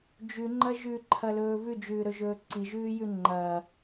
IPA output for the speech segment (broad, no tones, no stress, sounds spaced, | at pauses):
d͡ʒ ʉ ŋ͡ǃ ɐ ʒ ʉ ǃʰ ɐ l ɵː v ʉ d͡ʒ ʉː ɾ ɵ ʒ ɵː ǀ i ʒ ʉː j ʉ ŋ͡ǃ ɐː